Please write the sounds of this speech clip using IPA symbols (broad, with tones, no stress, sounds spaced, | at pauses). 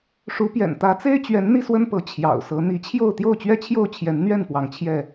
ʂ u˨˦ p j ɛ̰˨˩ n t̪ ä˨˦ t͡s e˦ ɪ̯ t͡ɕ ɥ ɛ˨˦ n n̪ i˥˨ s w ə˦ n p ɤ˨˦ t͡ɕʰ j ɑ̰˨˩ ʊ̯ s ɤ˨˦ n̪ i˨˦ t͡ɕʰ j o˥˨ ʊ̯ t̪ j o˥˨ ʊ̯ t͡ɕ ɥ ɛ˥˨ t͡ɕʰ j o˥˨ ʊ̯ t͡ɕʰ j ɛ˨˦ n n̪ ɥ ɛ˥˨ n p w ɑ˨˦ ŋ t͡ɕʰ j ɛ˥˨